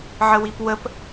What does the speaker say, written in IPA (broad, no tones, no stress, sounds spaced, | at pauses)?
ʕ ə w i p w ə p